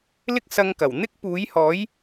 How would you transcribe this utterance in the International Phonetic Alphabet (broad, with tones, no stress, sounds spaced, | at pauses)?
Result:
l ɪ˥ k̚ s ɐ˧ ŋ k ɐ˨˩ w n̪ ɪ˥ k̚ p uː˨˥ j h ɔː˨˥ j